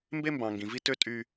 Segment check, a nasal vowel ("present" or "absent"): present